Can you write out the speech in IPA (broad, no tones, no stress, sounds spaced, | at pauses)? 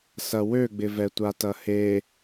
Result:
s ɐ w ø ɡ͡b ɪ v ɛ tʷ a t ɐ h e